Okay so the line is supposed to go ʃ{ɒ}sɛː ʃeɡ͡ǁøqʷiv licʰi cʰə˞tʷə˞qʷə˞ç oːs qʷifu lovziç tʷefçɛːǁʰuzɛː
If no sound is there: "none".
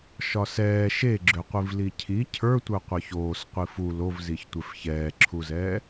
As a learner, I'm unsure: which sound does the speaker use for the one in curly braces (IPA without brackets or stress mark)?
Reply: ɒ